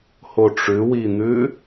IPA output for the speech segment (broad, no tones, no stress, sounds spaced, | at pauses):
h o ʈ͡ʂ ʉ w i n̪ ʉ